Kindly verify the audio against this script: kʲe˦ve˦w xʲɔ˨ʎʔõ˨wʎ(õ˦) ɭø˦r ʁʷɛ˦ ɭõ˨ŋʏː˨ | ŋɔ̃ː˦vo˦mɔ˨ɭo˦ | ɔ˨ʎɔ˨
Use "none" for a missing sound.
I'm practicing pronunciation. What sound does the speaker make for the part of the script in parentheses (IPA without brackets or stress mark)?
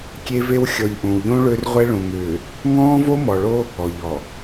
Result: õ˦